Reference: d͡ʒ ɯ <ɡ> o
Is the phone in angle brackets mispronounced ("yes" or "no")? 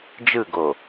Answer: no